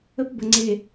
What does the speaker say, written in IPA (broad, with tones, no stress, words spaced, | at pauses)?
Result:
ə˦pbə˨ŋ͡ǀe˨